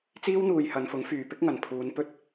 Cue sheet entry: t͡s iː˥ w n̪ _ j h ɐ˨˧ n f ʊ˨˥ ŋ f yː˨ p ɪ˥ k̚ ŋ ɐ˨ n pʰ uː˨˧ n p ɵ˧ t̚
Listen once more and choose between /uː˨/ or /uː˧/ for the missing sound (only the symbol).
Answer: uː˧